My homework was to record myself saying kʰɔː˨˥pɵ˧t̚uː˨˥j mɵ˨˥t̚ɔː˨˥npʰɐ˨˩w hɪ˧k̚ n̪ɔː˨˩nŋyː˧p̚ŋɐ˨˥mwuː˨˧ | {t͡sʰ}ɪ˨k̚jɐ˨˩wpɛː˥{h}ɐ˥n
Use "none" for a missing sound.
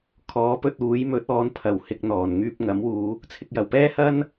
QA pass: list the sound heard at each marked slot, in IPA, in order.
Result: t͡sʰ, h

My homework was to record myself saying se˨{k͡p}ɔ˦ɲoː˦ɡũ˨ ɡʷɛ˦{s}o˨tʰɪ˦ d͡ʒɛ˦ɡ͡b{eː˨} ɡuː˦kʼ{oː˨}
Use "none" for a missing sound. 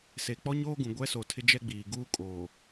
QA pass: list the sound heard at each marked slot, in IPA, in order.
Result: k͡p, s, iː˨, oː˨

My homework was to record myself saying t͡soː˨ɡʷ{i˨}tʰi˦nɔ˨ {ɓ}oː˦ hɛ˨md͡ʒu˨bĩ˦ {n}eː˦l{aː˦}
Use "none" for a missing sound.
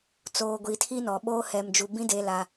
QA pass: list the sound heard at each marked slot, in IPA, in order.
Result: i˨, ɓ, d, a˦

